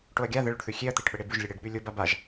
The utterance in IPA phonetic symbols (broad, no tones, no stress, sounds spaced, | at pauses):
ʈ o ɐ̯ ɡʲ a ð ə ɭ ʊ ɖ θ ʉ xʲ e ɐ̯ t̪ e ʈ ɓ ə ɽ e b ʉ ʒ lʲ ə ɽ e ɖ ɓ ʉ lʲ ʊ b a b a ʒ